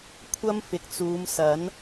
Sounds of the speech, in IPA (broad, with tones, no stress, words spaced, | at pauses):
kʷʰɐ˥mfɪ˨k̚t͡suː˨˧msɐ˨˥n